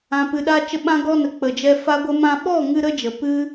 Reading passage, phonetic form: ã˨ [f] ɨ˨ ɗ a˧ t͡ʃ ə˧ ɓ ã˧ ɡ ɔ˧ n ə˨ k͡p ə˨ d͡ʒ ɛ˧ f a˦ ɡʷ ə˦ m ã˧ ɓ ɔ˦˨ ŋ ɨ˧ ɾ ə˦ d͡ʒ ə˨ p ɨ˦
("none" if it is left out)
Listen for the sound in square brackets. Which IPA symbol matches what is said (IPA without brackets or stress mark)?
p